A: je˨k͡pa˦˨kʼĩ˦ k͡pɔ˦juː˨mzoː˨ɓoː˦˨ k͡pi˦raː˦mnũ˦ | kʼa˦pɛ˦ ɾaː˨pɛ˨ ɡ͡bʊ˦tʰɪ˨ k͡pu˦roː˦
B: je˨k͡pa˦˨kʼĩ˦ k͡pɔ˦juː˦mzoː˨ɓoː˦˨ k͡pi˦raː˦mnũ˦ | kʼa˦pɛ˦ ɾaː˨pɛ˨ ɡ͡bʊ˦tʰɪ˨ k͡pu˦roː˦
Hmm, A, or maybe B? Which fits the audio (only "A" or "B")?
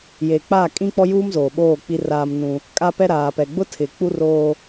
B